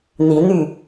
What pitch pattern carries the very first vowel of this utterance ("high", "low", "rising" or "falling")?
rising